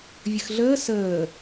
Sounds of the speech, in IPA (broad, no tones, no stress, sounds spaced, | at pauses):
vʲ ə x ɮ əː s əː